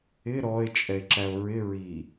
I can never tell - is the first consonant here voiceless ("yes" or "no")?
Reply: no